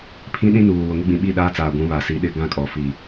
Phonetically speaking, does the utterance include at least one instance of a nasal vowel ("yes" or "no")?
yes